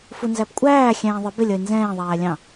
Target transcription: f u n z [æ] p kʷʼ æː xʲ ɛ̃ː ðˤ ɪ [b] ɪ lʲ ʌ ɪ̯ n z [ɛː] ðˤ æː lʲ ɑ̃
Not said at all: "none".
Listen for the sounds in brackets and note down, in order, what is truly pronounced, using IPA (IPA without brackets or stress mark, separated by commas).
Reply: æ, b, ɛ̃ː